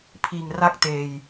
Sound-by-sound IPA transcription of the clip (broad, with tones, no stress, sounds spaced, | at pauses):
pʰ iː˨˩ ŋ r a˥˩ k̚ t eː˨˩ j